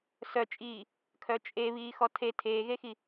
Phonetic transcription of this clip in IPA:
s œ t͡ʃʼ iː | kʰ œ t͡ʃʼ e β iː x ɔ tʰ e tʰ eː ɣ e x i

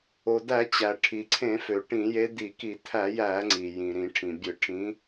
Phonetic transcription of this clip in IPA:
o˩ d̪ æ˧˩˧ t͡ɕ æ˩ ʈʰ i˩ ǀʰ ẽ˧˩˧ f ø˩ ʈ ĩ˧˩˧ j e˨˦ d̪ i˧˩˧ k i˧˩˧ t̪ʰ æ˧˩˧ j æ˧˩˧ ŋ͡ǀ i˩ j ĩ˩ ɾ ĩ˧˩˧ ʈʰ ĩ˩ bʲ ɯ˧˩˧ ʈʰ ĩ˨˦

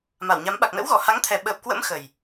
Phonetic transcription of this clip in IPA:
m a˧˩ w ɲ a˨˦ m ɓ a˨˩ k̚ n ə̰˧˥ w ɣ ɔ˧˩ h a˨˦ ŋ t̪ʰ ɛ˨˩ ɓ əː˨˩ p̚ k w ə̰˧˥ m x ə˨˩ j

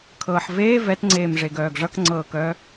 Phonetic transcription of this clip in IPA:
kʰ ɤː ħ v eː v ɛ t ŋ͡ǀ eː m ʐ e ɡ œː ɡ ʐ ʌ k ŋ͡ǀ ɤː k œ

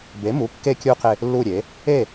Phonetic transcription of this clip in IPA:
b e˩˥ m u˩˥ kː e˥˨ kʲ u˥˨ q e˥˨ | lː u˥˨ ɾʲ e˩˥ | e˥˨

